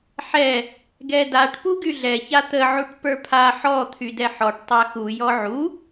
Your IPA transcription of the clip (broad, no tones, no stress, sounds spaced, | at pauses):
ħ ɛ | ɡ ɛ d a ʈ p u ɡ y ɮ ɛ ç a t̪ ə ʕ u ʈ p ə˞ pʰ a ħ ɔ t̪ʰ y d ɛ ħ ɔ ʈ tˤ a x u j ɔ ʕ u